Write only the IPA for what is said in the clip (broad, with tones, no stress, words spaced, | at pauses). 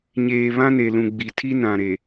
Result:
ɲeː˨ βã˦ne˨lũ˨ ɡ͡bi˨ tʰi˦ nã˨ɾe˨